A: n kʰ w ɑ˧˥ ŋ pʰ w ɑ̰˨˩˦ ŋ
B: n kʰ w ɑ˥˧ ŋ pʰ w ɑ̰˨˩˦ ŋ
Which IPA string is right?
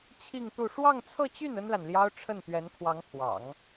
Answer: A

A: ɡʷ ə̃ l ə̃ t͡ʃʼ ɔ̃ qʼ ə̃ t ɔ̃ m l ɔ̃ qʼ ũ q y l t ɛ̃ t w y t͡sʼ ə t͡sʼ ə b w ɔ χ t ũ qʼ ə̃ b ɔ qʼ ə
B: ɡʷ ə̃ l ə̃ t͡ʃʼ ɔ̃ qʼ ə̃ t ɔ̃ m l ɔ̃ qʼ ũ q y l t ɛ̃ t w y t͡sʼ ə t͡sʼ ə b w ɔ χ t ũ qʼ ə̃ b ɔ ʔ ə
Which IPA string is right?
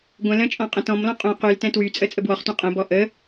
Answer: B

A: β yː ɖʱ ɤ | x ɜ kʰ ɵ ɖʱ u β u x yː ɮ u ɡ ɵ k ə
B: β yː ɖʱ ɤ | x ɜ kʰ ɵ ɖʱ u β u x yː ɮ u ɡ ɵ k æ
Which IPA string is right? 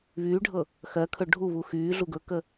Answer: A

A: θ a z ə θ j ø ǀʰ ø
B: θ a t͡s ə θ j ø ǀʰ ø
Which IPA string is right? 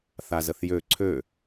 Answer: A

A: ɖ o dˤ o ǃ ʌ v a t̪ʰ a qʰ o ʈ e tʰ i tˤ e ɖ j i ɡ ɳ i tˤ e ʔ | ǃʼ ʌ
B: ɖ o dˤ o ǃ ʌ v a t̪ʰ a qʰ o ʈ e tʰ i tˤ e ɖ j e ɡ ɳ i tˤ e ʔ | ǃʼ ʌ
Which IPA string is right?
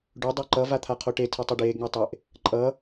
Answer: B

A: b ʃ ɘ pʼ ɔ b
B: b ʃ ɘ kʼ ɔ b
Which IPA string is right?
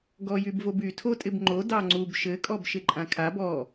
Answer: B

